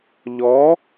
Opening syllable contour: rising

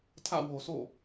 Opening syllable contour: falling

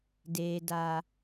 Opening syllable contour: low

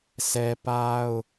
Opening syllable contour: high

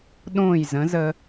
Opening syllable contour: falling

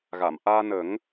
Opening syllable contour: low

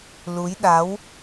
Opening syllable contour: rising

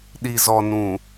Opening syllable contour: low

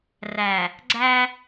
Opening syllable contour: low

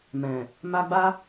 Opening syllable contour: low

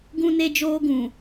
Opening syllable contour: high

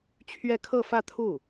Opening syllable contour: falling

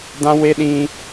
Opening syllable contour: high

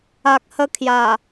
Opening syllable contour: low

